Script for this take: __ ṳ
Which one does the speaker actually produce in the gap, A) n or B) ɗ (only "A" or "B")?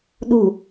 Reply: B